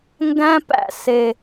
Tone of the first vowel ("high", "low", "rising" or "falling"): high